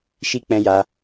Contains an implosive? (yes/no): no